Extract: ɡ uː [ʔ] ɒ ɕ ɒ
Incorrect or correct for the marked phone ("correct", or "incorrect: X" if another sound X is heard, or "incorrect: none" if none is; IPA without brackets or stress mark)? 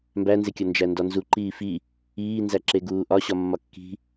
correct